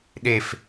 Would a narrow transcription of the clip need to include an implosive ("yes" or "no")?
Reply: yes